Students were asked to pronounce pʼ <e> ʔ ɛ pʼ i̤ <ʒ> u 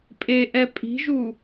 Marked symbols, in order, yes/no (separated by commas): yes, yes